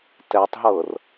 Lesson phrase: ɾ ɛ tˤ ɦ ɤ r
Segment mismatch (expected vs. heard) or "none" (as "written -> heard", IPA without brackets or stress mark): ɾ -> t